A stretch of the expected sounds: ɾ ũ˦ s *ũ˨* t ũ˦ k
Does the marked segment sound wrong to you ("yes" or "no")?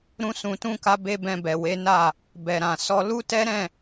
yes